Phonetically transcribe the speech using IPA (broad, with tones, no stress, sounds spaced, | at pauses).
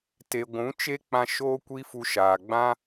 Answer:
t e˨ ɡʷ ũ˨˦ t͡ʃ e˦ k͡p ã˧ ʃ oː˦ kʷ i˦ f u˧ ʃ aː˨ ɡ͡b ã˦